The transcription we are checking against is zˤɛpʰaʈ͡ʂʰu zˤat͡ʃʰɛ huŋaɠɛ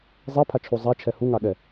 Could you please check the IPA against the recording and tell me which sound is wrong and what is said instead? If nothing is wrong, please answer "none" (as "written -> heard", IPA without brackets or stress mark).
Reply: ʈ͡ʂʰ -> t͡ʃʰ